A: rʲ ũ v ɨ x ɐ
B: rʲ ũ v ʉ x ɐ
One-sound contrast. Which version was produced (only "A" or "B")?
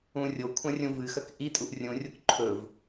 A